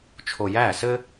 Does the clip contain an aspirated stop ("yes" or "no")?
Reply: yes